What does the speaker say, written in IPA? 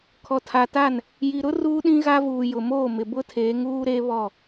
kʰ ɔ˨ tʰ a˨ t a˦˨ n | j i˨ ɾ ʊ˦ r uː˦ ɗ ĩ˦ ɣ a˦ v uː˨ j ʊ˨ m oː˦˨ m ɪ˨ b ʊ˦ tʰ eː˨˦ ŋ uː˦ ɾ eː˦ β ɔ˦˨

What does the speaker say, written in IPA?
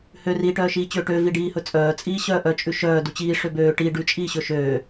h ø r iː ʈ œː ʃ iː t͡ɕ øː ʈ ø v i ɖ iː h ɵ t͡sʼ œː t͡sʼ iː ɕ œː ʔ œ t͡ʃʼ ʉ ʃ œː d u t͡ɕ iː ʂ ø b øː ʈ i ɖ ʉ t͡ʃʼ iː ɕ ɵ ʃ øː

